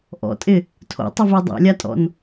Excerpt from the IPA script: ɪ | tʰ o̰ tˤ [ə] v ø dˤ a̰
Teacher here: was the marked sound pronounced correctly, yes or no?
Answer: no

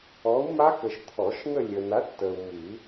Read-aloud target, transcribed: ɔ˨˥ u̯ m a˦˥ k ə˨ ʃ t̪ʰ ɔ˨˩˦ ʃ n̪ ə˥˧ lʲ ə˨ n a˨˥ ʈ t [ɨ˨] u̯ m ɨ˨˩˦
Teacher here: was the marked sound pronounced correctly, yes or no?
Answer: no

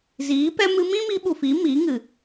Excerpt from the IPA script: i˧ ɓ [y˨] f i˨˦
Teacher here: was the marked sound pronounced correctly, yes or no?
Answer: no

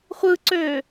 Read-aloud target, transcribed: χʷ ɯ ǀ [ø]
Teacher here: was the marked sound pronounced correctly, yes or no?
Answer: yes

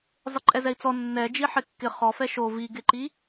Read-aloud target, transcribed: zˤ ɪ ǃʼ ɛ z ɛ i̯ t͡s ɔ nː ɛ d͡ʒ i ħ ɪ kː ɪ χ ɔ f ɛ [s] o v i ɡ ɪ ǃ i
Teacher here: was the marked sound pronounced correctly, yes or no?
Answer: no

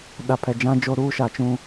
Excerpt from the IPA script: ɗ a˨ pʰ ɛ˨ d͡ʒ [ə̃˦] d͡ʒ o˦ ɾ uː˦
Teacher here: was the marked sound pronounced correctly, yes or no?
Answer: no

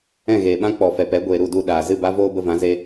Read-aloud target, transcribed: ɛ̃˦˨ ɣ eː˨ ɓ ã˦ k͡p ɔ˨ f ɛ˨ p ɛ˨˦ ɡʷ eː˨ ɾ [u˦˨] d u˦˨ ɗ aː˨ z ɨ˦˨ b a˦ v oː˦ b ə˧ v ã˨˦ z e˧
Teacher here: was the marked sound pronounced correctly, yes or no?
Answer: yes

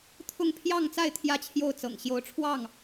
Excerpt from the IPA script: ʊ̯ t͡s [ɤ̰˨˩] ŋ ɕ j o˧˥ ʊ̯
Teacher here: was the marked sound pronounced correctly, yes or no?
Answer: yes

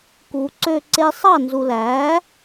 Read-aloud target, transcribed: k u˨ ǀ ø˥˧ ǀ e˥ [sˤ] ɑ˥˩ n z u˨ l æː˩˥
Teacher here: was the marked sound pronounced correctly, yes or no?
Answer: yes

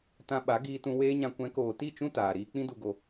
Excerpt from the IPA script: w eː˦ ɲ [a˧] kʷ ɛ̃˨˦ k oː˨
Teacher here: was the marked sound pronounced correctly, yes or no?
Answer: no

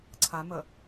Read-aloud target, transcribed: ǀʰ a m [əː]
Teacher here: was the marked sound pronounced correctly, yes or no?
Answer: no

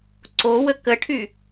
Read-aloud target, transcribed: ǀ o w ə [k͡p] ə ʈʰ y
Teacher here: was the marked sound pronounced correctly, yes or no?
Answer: no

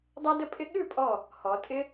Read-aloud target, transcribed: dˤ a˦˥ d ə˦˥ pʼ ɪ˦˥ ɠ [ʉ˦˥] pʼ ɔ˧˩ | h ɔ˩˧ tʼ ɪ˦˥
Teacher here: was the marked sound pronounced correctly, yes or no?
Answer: no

